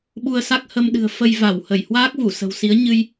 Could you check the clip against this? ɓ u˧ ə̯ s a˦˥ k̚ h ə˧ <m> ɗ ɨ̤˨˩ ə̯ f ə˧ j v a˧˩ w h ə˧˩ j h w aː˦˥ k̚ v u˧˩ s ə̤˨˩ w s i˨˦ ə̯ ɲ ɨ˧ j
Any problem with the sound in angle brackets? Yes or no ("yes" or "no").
no